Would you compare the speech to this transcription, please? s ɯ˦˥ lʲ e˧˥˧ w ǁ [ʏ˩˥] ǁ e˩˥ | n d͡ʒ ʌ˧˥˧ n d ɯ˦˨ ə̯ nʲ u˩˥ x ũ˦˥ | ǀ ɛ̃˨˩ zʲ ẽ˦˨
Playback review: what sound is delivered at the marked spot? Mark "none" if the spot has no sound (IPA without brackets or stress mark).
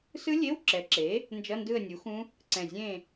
ɛ˩˥